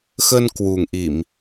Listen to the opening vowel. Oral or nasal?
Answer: oral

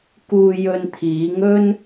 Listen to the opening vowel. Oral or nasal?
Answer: oral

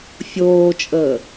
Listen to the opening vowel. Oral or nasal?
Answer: oral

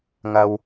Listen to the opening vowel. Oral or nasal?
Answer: oral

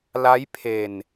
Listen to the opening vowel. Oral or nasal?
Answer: oral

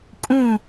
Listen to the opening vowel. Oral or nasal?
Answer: nasal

